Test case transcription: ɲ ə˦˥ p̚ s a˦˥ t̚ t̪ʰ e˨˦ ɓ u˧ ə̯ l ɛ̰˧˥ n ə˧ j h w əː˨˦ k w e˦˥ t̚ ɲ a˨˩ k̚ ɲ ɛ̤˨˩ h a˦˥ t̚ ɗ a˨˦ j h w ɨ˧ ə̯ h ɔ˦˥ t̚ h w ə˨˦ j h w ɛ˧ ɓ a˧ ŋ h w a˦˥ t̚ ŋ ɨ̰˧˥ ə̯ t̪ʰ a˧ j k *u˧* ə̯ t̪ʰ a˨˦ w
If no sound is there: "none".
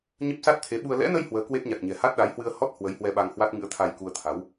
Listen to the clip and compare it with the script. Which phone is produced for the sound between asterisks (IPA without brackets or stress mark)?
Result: u˧